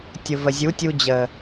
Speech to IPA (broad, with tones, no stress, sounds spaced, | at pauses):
tʲ ʊ˨ v ə˨ zʲ u˨˦ tʲ u˧ d͡ʑ ə˨